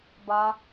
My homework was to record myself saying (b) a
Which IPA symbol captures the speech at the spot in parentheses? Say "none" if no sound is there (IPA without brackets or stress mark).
b